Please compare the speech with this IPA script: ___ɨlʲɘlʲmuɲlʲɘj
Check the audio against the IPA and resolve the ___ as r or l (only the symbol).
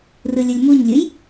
r